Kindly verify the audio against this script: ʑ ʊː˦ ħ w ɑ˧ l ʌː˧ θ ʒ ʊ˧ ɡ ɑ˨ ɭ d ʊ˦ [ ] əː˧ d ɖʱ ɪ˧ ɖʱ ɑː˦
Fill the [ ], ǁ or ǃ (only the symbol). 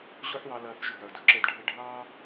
ǁ